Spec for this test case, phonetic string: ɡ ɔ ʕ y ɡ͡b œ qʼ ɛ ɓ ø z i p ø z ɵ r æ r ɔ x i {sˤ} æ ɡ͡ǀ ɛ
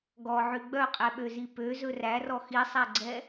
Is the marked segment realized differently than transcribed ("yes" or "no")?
no